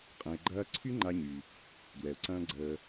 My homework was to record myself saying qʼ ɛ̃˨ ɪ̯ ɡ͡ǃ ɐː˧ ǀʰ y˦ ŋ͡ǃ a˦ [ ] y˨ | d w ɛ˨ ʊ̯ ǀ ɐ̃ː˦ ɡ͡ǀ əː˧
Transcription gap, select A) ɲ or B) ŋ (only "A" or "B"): A